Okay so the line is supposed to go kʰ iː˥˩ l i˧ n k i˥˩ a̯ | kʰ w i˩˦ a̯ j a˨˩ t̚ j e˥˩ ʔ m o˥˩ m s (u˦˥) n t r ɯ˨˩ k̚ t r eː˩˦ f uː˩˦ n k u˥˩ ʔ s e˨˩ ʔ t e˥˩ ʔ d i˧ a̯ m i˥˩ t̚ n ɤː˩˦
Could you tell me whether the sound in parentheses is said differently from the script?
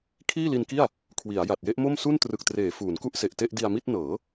yes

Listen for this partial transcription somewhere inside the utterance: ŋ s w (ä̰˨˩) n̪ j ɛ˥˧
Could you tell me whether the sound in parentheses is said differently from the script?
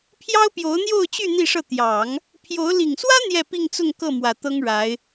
yes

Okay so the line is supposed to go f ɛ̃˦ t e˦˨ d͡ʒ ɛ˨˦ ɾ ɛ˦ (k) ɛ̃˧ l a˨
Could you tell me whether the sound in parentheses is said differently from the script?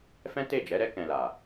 no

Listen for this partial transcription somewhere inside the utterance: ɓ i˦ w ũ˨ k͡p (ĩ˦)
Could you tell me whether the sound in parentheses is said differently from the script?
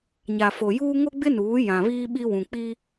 yes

